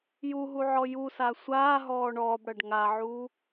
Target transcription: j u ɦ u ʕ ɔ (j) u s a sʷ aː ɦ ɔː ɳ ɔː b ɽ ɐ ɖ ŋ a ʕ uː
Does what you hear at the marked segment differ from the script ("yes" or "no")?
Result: no